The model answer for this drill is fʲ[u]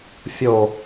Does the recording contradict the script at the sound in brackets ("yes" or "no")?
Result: yes